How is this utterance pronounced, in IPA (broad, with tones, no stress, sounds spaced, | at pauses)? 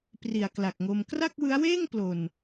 p r i˨˩ a̯ k l a˨˩ k̚ ŋ o˧ m k r a˥˩ k̚ w ɯ˦˥ a̯ w eː˥˩ ŋ p l o˨˩ n